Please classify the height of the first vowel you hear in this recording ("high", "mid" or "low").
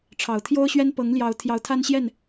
low